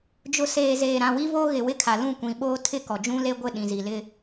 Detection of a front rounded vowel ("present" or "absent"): absent